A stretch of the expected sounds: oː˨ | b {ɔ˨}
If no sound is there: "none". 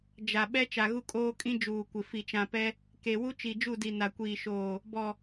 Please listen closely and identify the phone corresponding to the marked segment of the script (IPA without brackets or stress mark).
ɔ˨